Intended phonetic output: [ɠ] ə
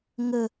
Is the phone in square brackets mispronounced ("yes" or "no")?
yes